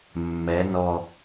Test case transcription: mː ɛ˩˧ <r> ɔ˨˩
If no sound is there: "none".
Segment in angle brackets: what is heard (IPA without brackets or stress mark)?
n